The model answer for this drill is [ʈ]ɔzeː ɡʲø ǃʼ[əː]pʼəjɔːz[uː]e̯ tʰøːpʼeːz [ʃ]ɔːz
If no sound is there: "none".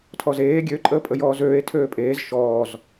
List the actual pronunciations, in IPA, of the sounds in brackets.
tʰ, əː, øː, ʃ

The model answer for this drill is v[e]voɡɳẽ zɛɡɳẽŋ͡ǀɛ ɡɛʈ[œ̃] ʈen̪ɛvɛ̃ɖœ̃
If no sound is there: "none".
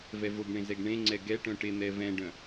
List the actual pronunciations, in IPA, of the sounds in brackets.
ɛ, œ̃

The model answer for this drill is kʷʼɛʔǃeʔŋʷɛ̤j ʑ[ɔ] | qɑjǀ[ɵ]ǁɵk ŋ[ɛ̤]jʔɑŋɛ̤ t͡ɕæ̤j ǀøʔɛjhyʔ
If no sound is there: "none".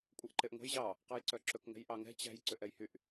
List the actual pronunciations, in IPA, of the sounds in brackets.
ɑ, œ, ɛ̤

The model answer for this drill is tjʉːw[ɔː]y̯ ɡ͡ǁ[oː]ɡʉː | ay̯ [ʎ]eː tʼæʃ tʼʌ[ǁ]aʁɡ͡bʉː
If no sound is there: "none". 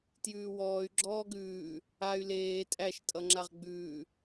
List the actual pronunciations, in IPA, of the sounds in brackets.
ɔː, ɔː, l, ŋ͡ǁ

